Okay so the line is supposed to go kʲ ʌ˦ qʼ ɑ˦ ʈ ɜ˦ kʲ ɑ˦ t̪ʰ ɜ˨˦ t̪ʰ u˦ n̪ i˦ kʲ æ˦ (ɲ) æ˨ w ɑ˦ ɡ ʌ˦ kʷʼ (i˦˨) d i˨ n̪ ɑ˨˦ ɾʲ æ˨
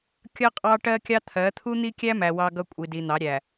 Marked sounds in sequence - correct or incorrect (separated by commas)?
incorrect, incorrect